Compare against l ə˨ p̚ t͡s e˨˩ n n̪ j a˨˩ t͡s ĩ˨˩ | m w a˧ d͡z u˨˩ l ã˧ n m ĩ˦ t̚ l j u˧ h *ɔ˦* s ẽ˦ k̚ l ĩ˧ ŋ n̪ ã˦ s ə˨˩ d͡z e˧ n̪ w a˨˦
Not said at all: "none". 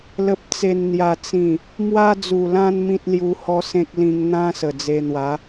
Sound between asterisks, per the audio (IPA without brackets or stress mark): ɔ˦